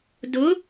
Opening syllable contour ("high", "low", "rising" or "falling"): rising